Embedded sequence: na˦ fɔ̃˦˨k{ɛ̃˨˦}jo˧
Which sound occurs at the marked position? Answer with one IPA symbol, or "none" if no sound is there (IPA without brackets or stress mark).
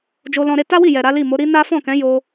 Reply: ɛ̃˨˦